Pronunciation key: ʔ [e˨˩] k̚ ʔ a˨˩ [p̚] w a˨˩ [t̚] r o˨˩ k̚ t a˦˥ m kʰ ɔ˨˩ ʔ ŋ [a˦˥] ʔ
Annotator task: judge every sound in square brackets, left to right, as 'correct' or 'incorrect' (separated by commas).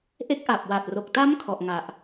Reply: incorrect, correct, correct, incorrect